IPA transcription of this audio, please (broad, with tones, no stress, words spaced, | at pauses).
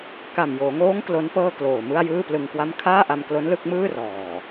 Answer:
ka˨˩mjoː˩˦ŋoː˦˥ŋ klo˦˥npɤː˥˩kloː˨˩mɯ˥˩a̯ jɯː˥˩plɯ˧ŋkwa˥˩m kʰaː˥˩ʔa˧mklo˦˥n lɯ˦˥k̚mɯː˥˩ rɔː˨˩